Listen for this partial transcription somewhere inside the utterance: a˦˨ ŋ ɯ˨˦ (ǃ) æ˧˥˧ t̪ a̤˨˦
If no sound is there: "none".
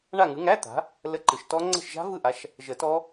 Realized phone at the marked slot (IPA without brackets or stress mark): ŋ